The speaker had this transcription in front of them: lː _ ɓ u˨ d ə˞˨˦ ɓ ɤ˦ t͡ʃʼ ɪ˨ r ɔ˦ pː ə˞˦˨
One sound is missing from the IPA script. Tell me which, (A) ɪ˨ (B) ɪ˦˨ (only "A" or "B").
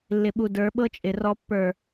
A